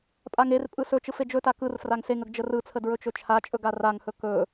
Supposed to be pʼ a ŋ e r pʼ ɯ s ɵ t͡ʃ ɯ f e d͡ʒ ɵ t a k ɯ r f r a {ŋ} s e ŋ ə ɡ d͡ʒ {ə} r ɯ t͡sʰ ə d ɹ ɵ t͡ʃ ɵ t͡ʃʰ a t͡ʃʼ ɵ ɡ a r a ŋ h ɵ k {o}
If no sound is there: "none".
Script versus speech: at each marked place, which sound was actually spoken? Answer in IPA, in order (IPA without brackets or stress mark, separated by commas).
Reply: ŋ, ə, ɵ